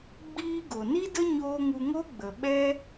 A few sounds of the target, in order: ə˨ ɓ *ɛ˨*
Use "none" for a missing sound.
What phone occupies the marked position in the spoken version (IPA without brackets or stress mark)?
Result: ɛ˦